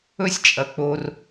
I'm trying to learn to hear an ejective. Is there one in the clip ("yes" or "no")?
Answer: yes